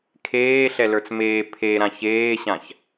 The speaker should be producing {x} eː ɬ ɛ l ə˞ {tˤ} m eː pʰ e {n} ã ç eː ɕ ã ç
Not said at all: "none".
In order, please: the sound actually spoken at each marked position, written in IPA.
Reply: kʰ, t͡s, ɾ

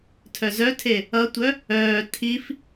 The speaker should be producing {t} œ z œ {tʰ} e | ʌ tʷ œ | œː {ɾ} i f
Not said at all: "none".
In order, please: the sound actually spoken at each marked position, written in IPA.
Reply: tʰ, tʰ, tʰ

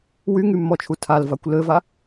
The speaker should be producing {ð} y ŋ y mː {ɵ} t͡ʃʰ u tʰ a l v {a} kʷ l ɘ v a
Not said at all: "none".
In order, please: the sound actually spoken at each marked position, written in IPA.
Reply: w, ɔ, a

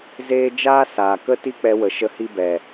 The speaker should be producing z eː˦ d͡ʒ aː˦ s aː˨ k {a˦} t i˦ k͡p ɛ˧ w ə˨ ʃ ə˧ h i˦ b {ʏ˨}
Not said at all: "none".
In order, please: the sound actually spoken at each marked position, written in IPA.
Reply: ə˦, ɛ˨

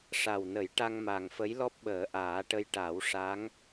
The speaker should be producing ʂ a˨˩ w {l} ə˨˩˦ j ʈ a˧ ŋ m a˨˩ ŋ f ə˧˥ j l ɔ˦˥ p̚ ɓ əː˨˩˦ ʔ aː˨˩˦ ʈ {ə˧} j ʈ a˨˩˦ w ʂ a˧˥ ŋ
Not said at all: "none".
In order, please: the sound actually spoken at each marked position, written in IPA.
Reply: n, ə˧

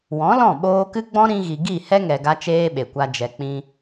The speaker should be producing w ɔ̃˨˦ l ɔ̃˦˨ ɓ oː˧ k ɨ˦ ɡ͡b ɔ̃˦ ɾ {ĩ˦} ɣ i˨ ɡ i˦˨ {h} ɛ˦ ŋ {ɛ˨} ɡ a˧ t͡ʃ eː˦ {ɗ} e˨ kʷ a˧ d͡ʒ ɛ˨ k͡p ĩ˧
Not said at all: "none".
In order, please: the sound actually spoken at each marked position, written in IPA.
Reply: ĩ˧, h, ɛ˨, ɓ

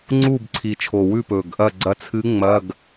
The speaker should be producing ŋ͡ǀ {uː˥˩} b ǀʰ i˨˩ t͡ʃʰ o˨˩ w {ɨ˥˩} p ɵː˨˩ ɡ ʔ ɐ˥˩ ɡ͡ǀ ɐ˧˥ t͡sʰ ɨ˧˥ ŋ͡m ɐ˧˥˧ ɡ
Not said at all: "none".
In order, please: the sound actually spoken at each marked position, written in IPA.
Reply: uː˥˩, ʉ˥˩

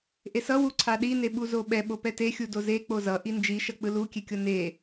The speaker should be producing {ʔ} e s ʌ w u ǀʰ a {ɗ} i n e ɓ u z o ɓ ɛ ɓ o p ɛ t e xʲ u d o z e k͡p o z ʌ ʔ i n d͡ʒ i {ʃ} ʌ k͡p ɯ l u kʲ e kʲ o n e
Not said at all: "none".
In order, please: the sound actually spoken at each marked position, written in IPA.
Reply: ʔ, ɗ, ʃ

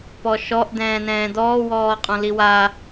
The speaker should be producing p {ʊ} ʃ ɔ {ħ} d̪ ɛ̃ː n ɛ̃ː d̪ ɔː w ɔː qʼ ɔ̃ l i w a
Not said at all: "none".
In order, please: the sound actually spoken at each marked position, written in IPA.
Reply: ɔ, ʔ

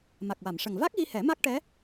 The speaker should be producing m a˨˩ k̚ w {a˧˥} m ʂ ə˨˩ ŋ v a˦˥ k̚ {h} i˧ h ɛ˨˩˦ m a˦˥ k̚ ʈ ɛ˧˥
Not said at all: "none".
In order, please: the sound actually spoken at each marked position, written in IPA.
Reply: a˨˩˨, ɣ

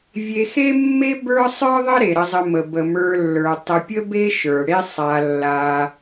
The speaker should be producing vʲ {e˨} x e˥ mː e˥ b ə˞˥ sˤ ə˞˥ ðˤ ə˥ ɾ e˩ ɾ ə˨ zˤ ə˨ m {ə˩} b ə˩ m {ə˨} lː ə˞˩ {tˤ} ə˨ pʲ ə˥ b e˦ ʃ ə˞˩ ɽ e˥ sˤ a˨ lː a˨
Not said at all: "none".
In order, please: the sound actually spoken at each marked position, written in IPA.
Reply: e˨, ə˩, ə˞˨, tˤ

